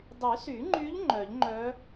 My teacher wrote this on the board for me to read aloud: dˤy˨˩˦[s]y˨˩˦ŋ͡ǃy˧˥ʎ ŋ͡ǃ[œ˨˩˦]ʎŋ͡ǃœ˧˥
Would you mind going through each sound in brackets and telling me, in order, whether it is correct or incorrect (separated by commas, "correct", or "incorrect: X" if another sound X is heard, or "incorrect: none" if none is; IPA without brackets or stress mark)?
correct, correct